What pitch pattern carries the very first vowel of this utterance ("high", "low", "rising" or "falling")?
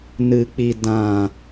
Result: low